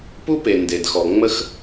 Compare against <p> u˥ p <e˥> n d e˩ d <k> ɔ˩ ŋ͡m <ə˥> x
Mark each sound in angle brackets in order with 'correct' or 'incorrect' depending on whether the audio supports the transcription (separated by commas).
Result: correct, incorrect, incorrect, correct